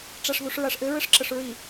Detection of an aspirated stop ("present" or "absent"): absent